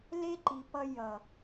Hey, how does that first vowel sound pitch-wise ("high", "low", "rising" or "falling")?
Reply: high